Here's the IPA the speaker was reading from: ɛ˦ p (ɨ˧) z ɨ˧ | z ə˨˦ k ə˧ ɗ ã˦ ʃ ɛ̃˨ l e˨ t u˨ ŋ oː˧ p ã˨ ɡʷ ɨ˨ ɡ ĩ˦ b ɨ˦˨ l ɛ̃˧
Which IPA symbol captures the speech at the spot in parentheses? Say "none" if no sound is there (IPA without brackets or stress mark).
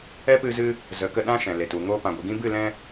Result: ɨ˧